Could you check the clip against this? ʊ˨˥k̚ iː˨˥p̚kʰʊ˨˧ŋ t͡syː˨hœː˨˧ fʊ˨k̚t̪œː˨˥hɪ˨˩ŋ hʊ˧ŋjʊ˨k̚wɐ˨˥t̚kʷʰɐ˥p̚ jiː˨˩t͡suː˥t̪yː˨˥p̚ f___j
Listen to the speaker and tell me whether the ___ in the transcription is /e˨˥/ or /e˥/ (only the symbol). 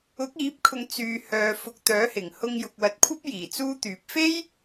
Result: e˥